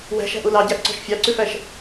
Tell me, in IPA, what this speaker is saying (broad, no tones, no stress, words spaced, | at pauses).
wæ̤ʃæ̤ʔu lɑɟæʔǀɔ̤ʃ fʲɑǀʉfæʃ